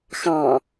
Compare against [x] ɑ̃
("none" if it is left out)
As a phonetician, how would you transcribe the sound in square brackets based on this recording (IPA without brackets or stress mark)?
x